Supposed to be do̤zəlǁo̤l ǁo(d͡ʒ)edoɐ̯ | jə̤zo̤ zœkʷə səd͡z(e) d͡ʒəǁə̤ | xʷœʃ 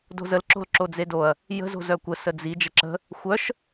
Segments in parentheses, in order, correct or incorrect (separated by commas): incorrect, incorrect